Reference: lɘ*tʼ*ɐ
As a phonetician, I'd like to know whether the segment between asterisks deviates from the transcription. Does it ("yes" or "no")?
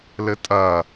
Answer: no